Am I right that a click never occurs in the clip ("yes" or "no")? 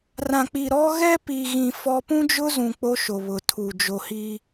yes